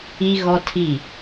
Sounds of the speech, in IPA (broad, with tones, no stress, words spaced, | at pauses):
i˦ɣɔ˦tʰi˦˨